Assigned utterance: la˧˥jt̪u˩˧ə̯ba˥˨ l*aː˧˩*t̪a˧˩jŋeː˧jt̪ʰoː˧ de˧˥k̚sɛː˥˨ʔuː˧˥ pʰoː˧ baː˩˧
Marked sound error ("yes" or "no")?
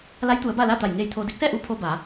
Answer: yes